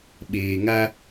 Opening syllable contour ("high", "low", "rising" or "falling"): low